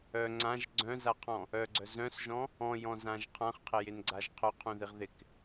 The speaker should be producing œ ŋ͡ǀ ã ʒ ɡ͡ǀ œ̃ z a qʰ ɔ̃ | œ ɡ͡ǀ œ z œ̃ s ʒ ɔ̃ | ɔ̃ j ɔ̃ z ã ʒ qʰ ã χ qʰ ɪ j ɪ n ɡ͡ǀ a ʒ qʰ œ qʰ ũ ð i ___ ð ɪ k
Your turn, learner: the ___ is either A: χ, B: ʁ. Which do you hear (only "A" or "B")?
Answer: B